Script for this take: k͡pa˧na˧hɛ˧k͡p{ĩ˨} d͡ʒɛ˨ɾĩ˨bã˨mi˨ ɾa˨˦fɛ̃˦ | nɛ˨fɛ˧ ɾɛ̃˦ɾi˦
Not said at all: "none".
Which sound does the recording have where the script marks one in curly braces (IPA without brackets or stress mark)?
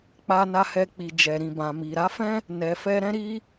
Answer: i˨